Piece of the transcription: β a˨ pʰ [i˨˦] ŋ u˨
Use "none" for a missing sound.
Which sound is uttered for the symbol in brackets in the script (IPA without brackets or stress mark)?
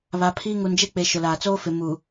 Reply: i˦